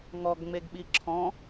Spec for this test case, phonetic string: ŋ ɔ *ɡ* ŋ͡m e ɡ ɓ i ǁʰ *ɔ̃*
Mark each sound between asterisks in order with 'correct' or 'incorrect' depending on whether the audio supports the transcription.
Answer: correct, correct

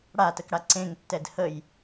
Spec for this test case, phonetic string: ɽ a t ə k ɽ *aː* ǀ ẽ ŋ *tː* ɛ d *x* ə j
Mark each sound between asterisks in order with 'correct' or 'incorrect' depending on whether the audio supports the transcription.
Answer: incorrect, correct, incorrect

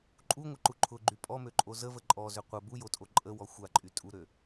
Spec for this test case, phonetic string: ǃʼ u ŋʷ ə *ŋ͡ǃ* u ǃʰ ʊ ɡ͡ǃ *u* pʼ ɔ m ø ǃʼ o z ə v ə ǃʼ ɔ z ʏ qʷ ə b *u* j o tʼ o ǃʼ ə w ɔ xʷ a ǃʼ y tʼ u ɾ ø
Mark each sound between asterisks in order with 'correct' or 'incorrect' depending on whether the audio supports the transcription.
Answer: incorrect, incorrect, correct

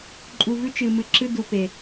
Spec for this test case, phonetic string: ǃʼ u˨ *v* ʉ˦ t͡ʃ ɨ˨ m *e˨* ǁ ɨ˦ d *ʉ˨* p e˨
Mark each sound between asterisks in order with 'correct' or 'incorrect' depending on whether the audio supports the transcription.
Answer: correct, incorrect, incorrect

